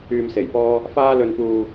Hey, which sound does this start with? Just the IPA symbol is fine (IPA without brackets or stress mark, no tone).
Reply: yː